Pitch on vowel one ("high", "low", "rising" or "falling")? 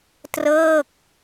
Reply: falling